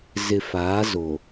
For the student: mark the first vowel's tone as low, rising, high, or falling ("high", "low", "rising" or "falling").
low